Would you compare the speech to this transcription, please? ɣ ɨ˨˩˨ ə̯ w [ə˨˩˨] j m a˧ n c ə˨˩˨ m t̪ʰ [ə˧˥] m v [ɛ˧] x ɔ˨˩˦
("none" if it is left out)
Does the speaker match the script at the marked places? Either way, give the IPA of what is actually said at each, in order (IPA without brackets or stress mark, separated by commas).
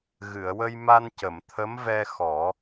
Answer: ə˧, ə˧˥, ɛ˧